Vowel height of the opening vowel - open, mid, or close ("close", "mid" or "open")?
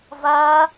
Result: open